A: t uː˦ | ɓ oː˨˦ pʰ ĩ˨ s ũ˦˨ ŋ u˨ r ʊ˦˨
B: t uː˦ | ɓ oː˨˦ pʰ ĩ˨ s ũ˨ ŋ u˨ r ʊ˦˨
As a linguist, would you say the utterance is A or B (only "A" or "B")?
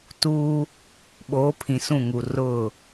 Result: A